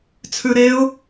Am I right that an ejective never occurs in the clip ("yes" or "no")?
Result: yes